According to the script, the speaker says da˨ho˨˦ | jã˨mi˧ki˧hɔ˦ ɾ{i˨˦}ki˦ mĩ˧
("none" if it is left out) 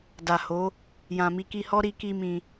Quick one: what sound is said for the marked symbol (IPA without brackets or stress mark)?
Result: i˦